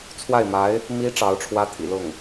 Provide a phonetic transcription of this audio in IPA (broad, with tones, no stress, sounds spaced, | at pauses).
t͡sʰ w a˥˩ ɪ̯ m a˧˥ ɪ̯ | m i˧˥ ʈ͡ʂ ɑ˧˥ ʊ̯ ʈ͡ʂʰ w ä˥ t̪ʰ ḭ˨˩ l ʊ˥˩ ŋ